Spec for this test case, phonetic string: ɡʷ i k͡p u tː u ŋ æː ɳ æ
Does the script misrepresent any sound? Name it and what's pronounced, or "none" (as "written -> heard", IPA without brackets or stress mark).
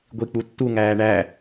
none